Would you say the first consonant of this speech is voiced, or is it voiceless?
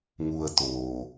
voiced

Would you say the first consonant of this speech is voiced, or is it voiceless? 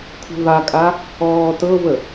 voiceless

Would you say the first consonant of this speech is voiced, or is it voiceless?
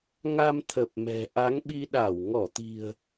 voiced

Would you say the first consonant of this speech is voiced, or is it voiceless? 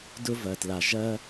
voiced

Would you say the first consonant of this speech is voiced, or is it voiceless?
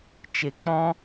voiceless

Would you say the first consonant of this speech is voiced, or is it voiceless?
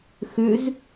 voiceless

